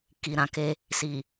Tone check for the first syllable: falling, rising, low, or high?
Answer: low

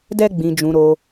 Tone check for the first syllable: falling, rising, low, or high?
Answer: high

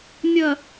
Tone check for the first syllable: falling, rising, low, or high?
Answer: low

